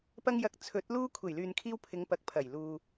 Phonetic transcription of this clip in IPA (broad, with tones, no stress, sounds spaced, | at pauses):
p ɐ˧ ŋ j ɐ˨ k̚ t͡sʰ ɵ˨˥ t̚ l uː˥ kʷʰ e˨˩ j l yː˨ n kʰ iː˧ w pʰ ɪ˨˧ ŋ p ɐ˨ k̚ pʰ ɐ˨˩ j l uː˨